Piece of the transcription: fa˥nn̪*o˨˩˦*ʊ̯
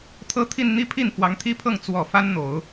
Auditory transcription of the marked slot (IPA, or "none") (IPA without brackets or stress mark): o˨˩˦